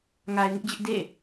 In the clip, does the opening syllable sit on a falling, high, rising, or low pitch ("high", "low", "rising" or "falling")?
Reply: low